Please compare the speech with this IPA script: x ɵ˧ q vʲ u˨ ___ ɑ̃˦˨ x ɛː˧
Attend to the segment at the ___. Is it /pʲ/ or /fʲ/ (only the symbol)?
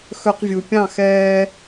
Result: pʲ